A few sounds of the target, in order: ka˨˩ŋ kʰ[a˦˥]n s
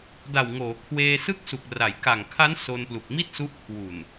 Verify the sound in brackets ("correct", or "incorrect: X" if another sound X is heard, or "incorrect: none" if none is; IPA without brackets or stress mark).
correct